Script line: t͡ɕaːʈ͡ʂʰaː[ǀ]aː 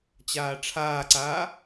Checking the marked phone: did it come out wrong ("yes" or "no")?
no